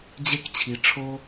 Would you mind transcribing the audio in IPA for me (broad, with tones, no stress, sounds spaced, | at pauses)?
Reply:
d͡ʑ e˧ k t͡ɕʰ i˨ ʈ͡ʂʰ o˧